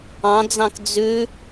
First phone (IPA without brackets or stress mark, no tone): ɑ̃